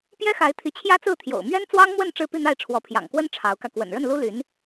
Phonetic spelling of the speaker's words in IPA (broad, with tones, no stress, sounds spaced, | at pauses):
p j ɛ˥ x a˧˥ ɪ̯ t̪ʰ i˧˥ t͡ɕʰ j ä˥ t͡s ɹ̩˥˩ t̪ʰ j o̰˨˩ ʊ̯ m ɥ ɛ˥ n t͡s w ɑ˥ ŋ m w ə˥˧ n ʈ͡ʂ ɻ̩˥˧ p i˥˧ n̪ a˥˩ ɪ̯ ʈ͡ʂʰ w ɔ˧˥ pʰ j ɑ̰˨˩ ŋ k w ə˥ n ʈ͡ʂʰ ɑ˧˥ ʊ̯ k ä˧ k w ə̰˨˩ n ɻ ə˥˩ n l u˥ l y˧˥ n